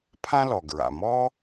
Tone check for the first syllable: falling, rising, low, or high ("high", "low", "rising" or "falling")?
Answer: high